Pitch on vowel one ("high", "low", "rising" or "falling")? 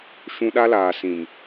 high